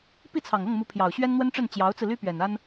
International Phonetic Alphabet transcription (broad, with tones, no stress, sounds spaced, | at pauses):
p i˥˩ t͡sʰ ɑ˨˩ ŋ ɤ˥˩ ŋ m u˧˥ pʰ j ɑ˨˩ ʊ̯ ɕ ɥ ɛ˥ n n̪ w ə˥ n ʈ͡ʂ ə˥˩ n t͡ɕ j ɑ˧˥ ʊ̯ t͡s ɹ̩˧ l y˥ p ɥ ɛ˨˩ n a˥ n